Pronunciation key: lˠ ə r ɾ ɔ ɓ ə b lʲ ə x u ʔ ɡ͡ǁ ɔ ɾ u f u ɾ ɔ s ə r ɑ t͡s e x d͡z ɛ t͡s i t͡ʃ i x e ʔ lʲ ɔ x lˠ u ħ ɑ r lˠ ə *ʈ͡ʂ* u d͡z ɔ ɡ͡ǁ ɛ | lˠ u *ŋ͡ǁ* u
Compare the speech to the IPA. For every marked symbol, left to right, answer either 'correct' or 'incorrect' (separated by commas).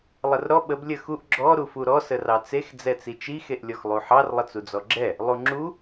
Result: incorrect, correct